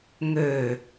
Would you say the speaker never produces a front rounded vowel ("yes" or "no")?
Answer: no